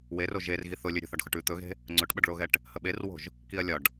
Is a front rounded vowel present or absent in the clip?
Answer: absent